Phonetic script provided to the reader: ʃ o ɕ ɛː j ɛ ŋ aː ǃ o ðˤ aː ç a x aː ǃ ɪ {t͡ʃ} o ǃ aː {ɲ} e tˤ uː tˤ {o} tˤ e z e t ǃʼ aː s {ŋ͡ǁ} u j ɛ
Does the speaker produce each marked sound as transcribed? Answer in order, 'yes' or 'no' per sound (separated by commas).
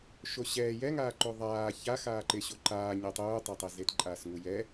no, yes, yes, no